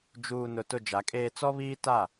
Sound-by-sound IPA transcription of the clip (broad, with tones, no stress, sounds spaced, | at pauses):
d͡ʒ uː˨ n ʊ˨ t ʊ˦˨ d͡ʒ a˨˦ kʼ eː˦ t͡s ɔ˦ β iː˦ t a˦˨